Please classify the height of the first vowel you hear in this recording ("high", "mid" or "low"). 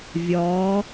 low